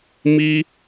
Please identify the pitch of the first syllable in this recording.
high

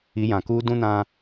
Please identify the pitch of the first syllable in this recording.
rising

